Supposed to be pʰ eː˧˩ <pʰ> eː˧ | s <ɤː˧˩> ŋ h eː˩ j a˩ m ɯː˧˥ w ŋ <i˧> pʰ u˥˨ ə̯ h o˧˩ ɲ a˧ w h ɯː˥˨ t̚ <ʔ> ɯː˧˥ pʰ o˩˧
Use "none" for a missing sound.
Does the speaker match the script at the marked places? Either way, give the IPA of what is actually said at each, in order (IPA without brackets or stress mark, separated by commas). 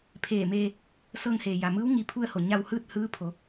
m, ɤː˧, i˧, h